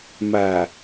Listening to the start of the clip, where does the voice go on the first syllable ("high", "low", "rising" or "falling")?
low